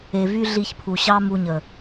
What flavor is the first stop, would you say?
aspirated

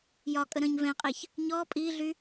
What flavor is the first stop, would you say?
ejective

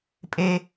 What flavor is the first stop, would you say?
ejective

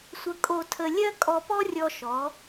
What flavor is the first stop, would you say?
ejective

